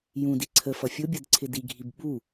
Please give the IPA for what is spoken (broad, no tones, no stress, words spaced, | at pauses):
jũ diǀʰə fʌfʲʊbʲʌd ǀʰɪdiɡʱib ɓu